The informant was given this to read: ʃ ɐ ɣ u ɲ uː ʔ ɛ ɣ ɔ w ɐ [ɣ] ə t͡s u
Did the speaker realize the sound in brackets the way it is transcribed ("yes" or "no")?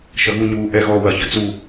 no